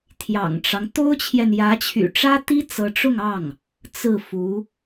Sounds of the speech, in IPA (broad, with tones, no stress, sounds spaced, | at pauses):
t̪ʰ j ɑ̰˨˩ ŋ ʈ͡ʂ ɑ˦ ŋ t̪ o˥ ʊ̯ t͡ɕʰ j ɛ˨ n j ä˧˥ t͡ɕʰ y̰˨˩ ʈ͡ʂ ä˥ t̪ i˥ t͡s ɤ˧˥ ʈ͡ʂ ʊ˥˧ ŋ ɑ˥˩ ŋ | t͡s ɹ̩˥˩ f u˧˥